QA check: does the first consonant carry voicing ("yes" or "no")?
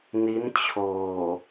yes